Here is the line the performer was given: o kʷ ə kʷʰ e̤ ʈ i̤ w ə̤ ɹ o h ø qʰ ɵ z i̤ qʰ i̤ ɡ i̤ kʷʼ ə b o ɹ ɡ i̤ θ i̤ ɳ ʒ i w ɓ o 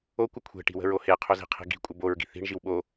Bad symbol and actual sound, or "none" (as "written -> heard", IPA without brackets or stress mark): ø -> e